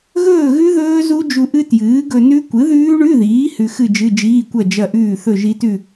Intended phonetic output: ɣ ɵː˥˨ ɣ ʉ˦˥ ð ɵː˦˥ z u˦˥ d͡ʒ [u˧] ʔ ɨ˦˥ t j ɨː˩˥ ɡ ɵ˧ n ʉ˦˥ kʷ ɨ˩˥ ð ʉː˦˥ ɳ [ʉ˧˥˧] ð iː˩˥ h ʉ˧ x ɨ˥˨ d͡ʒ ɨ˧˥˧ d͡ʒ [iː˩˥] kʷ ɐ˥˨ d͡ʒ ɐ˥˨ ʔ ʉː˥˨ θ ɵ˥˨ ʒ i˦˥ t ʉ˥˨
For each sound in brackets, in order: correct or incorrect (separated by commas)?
correct, correct, incorrect